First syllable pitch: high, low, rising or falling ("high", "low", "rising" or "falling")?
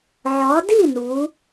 rising